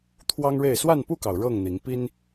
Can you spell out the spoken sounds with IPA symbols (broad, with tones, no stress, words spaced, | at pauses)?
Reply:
t̪ʰwɑ˦ŋɻe˥˨ɪ̯ swa˥˨npu˥˨kɑ˩ʊ̯ ɻɤ˥˨ŋn̪i˨˦ŋ pi˦n